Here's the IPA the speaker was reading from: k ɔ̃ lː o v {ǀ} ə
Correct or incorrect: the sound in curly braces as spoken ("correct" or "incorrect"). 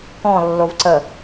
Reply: correct